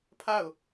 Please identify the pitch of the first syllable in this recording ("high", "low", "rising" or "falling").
falling